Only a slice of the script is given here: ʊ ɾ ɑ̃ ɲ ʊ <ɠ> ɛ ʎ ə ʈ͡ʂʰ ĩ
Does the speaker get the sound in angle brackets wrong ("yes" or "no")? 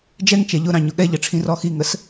no